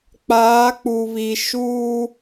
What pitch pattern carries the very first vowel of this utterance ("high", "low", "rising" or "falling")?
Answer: rising